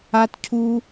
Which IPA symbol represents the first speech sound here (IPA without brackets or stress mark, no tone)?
a